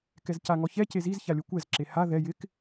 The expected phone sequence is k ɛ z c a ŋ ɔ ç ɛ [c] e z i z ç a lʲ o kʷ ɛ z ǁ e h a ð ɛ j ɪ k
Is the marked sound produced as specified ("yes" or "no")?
yes